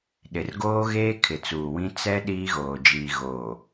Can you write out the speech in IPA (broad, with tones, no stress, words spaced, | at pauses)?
ɗɪ˨rɡoː˦ɣeː˦ kʰɪ˨t͡suː˨wĩ˦ t͡sɛ˦ ɗiː˦ɣoː˨d͡ʒiː˨ ɣo˨